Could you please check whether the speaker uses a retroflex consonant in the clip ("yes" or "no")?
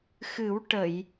yes